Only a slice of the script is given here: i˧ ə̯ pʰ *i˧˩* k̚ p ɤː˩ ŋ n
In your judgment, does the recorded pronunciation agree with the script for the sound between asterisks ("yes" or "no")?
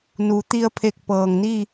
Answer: no